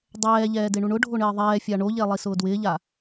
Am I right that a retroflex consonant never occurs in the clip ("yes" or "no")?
no